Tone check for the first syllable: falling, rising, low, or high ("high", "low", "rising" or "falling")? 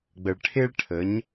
low